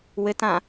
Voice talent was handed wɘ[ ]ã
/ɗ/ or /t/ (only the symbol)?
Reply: t